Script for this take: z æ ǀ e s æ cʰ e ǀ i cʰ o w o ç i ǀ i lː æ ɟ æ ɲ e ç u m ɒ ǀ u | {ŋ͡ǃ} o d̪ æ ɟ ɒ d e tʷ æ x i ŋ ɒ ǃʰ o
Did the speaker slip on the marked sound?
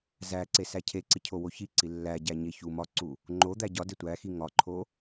no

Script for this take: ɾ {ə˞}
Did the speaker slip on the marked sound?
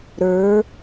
no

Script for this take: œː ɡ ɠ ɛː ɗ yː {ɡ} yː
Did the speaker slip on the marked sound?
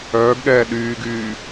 no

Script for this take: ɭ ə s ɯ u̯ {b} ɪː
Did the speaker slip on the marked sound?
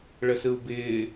no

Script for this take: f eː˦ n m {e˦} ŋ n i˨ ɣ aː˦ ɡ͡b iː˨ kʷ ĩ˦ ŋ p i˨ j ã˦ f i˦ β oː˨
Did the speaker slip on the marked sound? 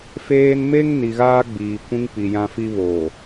no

